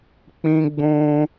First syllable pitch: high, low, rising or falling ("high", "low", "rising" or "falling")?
high